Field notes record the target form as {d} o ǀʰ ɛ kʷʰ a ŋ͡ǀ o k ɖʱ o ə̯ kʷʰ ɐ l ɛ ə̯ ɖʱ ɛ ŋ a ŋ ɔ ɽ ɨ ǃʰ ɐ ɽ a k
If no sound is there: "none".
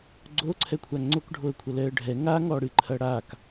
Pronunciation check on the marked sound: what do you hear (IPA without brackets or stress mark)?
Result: ɡ͡ǀ